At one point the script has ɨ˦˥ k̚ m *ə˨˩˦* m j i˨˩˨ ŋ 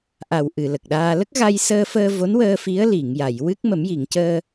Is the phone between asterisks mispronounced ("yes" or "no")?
no